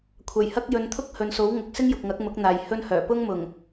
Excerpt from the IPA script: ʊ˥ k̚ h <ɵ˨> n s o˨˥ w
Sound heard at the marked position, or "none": ɵ˨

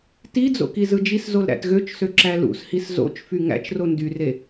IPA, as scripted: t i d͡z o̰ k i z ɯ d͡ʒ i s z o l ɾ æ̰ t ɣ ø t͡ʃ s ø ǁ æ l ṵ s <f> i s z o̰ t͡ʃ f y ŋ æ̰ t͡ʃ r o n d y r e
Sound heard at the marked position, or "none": h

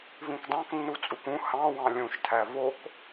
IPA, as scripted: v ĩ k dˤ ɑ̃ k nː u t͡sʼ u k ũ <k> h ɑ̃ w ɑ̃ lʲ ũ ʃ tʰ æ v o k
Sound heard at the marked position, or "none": none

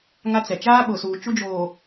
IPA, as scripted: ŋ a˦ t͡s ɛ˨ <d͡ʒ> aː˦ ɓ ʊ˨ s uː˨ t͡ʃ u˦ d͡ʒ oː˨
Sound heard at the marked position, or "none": t͡ʃ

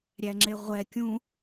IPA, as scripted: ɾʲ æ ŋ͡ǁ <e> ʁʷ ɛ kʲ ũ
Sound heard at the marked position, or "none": e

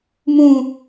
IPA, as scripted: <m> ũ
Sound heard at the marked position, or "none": m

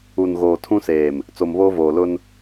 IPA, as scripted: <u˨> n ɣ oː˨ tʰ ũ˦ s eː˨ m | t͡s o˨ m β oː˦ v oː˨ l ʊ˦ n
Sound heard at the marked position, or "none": u˨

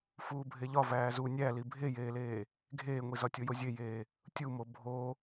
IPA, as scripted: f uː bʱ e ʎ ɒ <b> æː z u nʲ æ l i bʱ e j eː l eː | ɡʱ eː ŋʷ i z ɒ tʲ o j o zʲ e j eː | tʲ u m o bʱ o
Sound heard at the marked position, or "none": v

